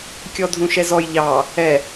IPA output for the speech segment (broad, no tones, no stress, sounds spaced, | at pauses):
kʲ ɔ dʱ ũ ʃ ɛ z ɔ j ʎ ɑ | ɛ